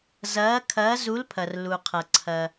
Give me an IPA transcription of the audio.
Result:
z ɐː˨˦ kʰ ɐː˨˦ z u˨˦ l pʰ ɐ˩ r l u˩ qʰ ɐ˩ ǀʰ ɐ˩

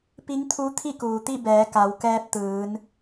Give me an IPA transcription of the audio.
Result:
p i˧˥ ŋ t̪ʰ u˧˥ t̪ʰ i˥˨ k uː˩ t̪ i˥˨ b ɛː˩˧ k a˩˧ w k ɛː˧ p̚ t̪ ɯː˩˧ n

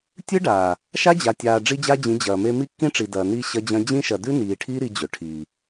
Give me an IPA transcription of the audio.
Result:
tʲ ɨ˦ ɖ aː˨ | ʃ a˦ d͡ʑ a˨ tʲ aː˨ ɖ͡ʐ i˦ d͡ʑ a˦ d͡ʑ ĩ˨˦ d͡ʑ ɐː˨ m e˦ m i˦ kː ĩ˦ ʈ͡ʂ i˨ d ɐː˨ n i˦ ɕ ɐ˦ d͡ʑ ɐ̃˦ d͡ʑ ĩ˦ ʃ ɐ˨ d ʉ˦ n iː˨ ʈʰ iː˦ ɾ i˦ d͡ʑ ɵ˨ ʈʰ iː˨

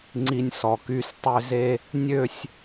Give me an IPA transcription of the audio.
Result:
ŋ͡ǀ i˧ nʲ s ɔ˨˩ k y˧ s tˤ ø˧ z e˧ | nʲ ø˥˧ sʲ

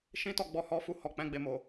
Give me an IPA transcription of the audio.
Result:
ʃ ĩ˦ t ɔ˦˨ ɡ͡b ɔ˧ h ɔ˦ f u˧ h ɔ˨ k͡p ɛ̃˨˦ ɡ͡b e˧ m o˨

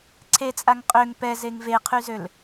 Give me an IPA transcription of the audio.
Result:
ǀʰ e t͡sʼ a ŋ qʼ ø ŋ p ɛ z e ŋ v e qʰ y z ø l

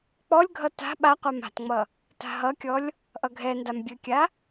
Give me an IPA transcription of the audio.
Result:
k͡p ɔ lʲ ɡʱ ʌ t a̤ ɓ a qʷ a m a̤ t ŋ͡m ʌ | t a̤ ɦ ʌ kʲ ɔ lʲ | ʔ ʌ ɡʱ ɛ n d a m bʲ ɘ kʲ a

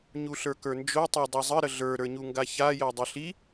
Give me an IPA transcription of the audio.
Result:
ɲ u ɬ ə˞ k ə˞ n d͡ʒ o tˤ ə˞ dˤ i zˤ ə ɾ ə ɮ ə˞ ɾ ə˞ ɲ u ŋ ɡ a ç a j ɜ dˤ ʌ ɬ i

